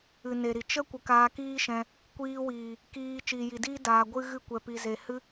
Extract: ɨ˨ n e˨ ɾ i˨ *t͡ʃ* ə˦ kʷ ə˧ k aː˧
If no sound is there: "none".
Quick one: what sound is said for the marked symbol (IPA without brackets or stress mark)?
t͡ʃ